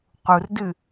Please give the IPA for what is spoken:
q u r d ɨ

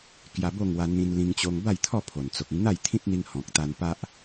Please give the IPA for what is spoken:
k j a˧ b o˥˧ ŋ w a˧ n̪ ĩ˧ n l ĩ˧ ŋ t͡ɕ o˧ ŋ b a˥˧ j t̪ʰ ɔ˥˧ pʰ o˨˩ n t͡s o˨ k̚ ĩ˧ n̪ a˥˧ j t̪ʰ ĩ˦ t̚ n̪ i˧ ŋ h ɔ̃˨ k̚ t̪ a˧ n p a˦ ʔ

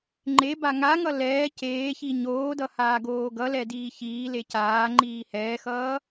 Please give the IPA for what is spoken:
ŋ͡ǃ e b a ŋ a ŋ ʌ l ɛː c eː ç i ɲ oː d ʌ h aː ɡ oː ɡ ʌ l ɛ d iː ç iː l e c aː ŋ͡ǃ iː h ɛː x ʌː

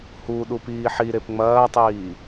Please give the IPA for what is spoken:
h u ɗ u p iː ħ i ɾ e p ŋ͡m ɐː tˤ iː

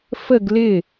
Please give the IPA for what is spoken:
f ə ɡ l ɪ

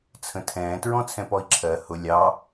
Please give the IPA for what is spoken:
t͡sʰ ə̃ tʰ ɛ̃ː t ɹ ɔ̃ t͡sʰ ɛ̃ p ɔ i̯ ǁʰ ɜ h ʊ lʲ ɑ

